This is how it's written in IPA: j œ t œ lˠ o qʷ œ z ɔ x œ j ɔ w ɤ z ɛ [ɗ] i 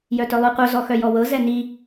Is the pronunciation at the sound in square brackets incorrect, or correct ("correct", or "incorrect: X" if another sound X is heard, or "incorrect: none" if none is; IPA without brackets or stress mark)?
incorrect: n